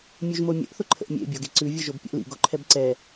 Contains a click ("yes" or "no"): yes